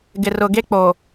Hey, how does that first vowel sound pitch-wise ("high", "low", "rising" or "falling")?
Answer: low